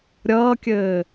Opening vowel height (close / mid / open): mid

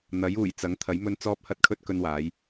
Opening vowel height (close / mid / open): open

